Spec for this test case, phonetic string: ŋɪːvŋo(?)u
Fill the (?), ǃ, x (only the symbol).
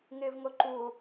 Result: ǃ